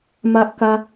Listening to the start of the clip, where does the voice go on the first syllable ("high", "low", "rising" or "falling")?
high